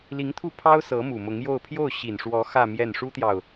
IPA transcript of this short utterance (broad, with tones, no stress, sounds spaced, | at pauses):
l i˧˥ ŋ t̪ʰ u˥˩ pʰ ɑ˥ ʊ̯ s ɤ˧˥ m u˨˩ m ʊ˧˥ ŋ j o˥˧ ʊ̯ pʰ j o˥˩ ʊ̯ ɕ i˨˩ n ʂ w ɔ˧˥ x ä˥˧ m j ɛ˥˩ n ʂ u˥ t̪ j ɑ˨ ʊ̯